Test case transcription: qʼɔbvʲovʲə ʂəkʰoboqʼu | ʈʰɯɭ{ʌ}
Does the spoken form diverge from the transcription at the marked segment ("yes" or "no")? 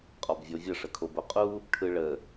yes